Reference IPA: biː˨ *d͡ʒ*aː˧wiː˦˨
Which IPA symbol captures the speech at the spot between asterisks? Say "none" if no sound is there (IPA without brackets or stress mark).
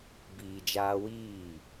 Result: d͡ʒ